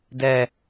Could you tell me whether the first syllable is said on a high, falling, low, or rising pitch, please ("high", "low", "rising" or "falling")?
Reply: high